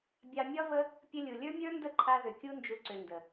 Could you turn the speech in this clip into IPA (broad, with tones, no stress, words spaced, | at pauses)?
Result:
bʲɑ˧mʲɒ˦və˦ | pʲə˧lʲu˨ lʲə˞˦mʲə˞˦ndə˦˨ǃʰa˧ ðʏ˨kʲu˧nd͡ʒu˨ǀʏ˨ ndə˨